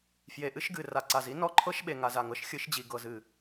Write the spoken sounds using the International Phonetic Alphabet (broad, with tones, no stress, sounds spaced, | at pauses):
f j e˨ ʔ ɨ˦ ʃ ɡ ɨ˨ r a˨ ǀ a˨ z i˦ n ɔ˦ ǃʰ ɤ˦ ʃ ɓ e˨ ŋ a˨ z a˨ ŋ ɤ˦ ʃ xʲ ɨ˨˦ ʃ d͡ʑ i˨ ɡ ɤ˨ z ɨ˨